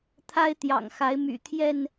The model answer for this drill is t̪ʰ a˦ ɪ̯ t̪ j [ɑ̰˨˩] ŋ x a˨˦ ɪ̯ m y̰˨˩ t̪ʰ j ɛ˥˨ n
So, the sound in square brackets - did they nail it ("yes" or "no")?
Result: yes